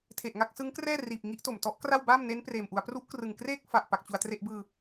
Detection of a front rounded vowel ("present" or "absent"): absent